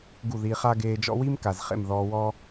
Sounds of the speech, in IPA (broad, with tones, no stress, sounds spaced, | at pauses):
ɡ u˦˨ ð i˧ χ a˦ ɡ eː˧ d͡ʒ ɔ̰˦ w i˦ m k a˨ z χ ḛ˦˨ m ð ɔː˧ w ɔː˦